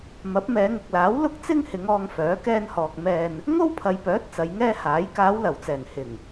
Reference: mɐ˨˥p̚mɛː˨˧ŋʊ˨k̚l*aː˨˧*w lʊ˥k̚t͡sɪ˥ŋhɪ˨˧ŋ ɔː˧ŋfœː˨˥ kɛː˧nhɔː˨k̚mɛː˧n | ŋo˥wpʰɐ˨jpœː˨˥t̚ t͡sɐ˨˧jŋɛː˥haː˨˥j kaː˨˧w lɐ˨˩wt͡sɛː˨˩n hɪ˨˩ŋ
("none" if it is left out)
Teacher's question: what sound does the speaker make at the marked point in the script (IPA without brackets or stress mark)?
aː˨˥